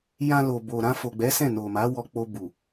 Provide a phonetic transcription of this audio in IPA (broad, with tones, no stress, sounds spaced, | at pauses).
j ã˧ l o˨ b o˨ ɾ ã˧ f o˨ ɡ͡b ɛ˨˦ s ɛ̃˦˨ n o˨ m a˨˦ w ɔ˧ k͡p o˧ b u˨